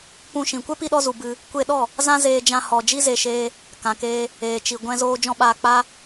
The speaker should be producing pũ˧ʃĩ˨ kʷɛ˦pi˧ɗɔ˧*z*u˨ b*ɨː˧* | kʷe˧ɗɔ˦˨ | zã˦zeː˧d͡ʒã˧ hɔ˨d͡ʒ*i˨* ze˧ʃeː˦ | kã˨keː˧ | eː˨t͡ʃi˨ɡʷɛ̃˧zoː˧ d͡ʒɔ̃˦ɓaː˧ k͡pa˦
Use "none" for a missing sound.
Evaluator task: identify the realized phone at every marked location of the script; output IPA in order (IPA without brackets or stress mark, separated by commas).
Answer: z, ɨ˧, i˧